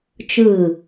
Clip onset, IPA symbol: t͡ʃ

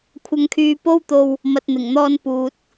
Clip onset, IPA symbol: kʷʰ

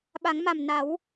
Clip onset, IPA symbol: ɓ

